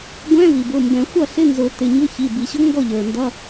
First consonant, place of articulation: velar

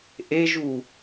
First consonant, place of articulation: glottal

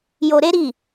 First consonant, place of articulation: palatal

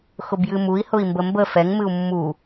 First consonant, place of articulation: velar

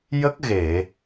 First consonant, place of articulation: palatal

